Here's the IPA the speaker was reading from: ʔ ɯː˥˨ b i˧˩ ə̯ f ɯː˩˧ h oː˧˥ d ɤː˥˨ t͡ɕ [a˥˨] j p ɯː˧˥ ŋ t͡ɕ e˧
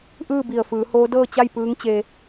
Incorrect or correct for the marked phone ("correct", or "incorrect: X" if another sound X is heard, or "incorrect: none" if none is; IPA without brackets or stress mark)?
correct